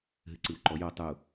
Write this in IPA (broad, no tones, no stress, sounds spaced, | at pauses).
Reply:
ɦ ɨ ǀ ɨ w ǃ ɔ j o tˤ u